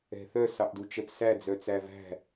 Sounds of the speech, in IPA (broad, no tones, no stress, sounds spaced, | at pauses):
ɛ̤ θ œ s ɑ ʔ d u t͡ʃ ɛ p s æ d͡z œ t͡s æ v æ̤